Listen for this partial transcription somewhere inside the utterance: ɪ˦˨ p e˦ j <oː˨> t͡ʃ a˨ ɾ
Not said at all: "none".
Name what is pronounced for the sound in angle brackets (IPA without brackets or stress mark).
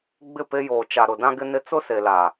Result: oː˨